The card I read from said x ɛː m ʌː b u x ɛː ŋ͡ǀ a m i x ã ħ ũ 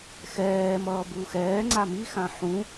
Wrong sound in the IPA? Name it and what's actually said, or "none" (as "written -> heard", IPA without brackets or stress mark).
none